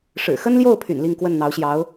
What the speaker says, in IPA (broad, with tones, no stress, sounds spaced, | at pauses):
ʂ ɻ̩˨˩ x ə˥ n l j o˥˩ ʊ̯ pʰ y̰˨˩ n l i˥˧ ŋ k w ə˥˩ n n̪ ɑ˧˥ ʊ̯ ɕ j ɑ˧˥ ʊ̯